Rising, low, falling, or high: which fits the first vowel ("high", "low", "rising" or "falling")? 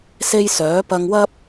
high